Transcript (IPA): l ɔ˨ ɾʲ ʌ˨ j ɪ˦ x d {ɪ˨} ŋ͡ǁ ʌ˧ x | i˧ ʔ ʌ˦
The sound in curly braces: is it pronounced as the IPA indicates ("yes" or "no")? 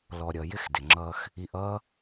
yes